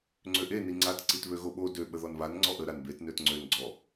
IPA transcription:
ŋ͡ǀ ø ʔ e n i ŋ͡ǀ a t ǀ i t β ø ɣ o ɓ o d ø ɓ ə ð ɔ n β a n ŋ͡ǀ ɔ ʔ ə ɾ a n b e t n ø t ŋ͡ǀ ø n ɡ͡ǀ ɔ

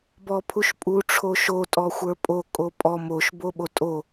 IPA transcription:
b ɔ pʰ u ʃ pʼ u ʈ͡ʂʰ o ʃ o tʼ ɔ xʷ ə˞ pʼ o kʼ o pʼ ɔ m o ʃ b o ɓ o tʼ o

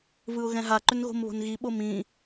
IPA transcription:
v ɯ ʊ̯ ɣ ɛ̃ ɦ a ǃ ʏ n ɣ o̤ m β o̤ n ɣ i ɓ o m ĩ

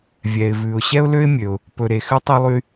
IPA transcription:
vʲ ɛ˩ ɪ̯ v ʉ˩ ʊ̯ ɕ ɛ˥ ʊ̯ l ø˥ ɪ̯ mʲ ø˩ ʊ̯ | p ɵ˩ ɾ e˩ x ʉ˥ tˤ e˥ lˠ y˥

